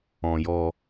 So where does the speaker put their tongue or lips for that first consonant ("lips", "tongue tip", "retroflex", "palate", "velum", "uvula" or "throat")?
palate